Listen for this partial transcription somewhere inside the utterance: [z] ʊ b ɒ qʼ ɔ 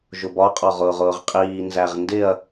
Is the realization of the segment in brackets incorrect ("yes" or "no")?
yes